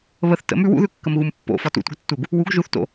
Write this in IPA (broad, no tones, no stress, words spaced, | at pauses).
βəθ tə̰m ʉw ṵðʉ kːəmɣumpːo̰ fɒtṵtʷə̰ɡtːuɡ | wuɡ ʒuθto̰